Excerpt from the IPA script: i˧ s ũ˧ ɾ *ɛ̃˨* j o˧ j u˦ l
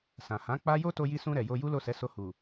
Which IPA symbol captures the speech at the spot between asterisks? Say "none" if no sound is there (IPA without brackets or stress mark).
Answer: ɛ˨